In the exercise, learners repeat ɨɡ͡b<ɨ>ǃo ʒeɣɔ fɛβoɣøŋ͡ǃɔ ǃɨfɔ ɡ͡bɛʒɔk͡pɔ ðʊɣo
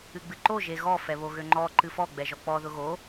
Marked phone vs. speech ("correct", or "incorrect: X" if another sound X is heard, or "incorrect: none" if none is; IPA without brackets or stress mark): correct